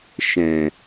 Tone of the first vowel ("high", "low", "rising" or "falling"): low